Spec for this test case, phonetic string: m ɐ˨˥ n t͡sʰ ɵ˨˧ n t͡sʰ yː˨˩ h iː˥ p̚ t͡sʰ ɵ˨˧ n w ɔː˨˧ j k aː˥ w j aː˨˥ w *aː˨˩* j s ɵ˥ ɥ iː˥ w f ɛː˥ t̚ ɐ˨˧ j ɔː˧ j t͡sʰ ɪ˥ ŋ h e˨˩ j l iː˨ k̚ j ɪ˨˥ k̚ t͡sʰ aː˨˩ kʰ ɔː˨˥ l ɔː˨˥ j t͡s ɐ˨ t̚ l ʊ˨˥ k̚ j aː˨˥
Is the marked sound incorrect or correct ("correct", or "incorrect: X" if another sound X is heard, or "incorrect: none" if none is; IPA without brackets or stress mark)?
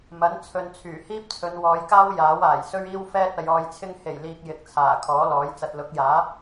correct